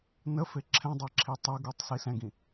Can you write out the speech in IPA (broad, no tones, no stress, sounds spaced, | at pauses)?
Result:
n ə f e ǁʰ ɛ̃ dˤ ɛ ǁʰ i tˤ e ɡ u tˤ s i s ɛ̃ ɡ ĩ